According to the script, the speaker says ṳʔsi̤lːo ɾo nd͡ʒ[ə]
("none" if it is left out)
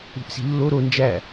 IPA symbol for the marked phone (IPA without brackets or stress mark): æ